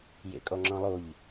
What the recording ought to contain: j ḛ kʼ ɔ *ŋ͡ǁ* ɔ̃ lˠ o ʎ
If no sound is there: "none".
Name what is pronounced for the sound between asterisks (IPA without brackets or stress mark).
ŋ͡ǁ